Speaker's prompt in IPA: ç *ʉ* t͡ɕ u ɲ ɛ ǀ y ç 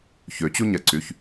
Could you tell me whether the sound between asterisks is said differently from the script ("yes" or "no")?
yes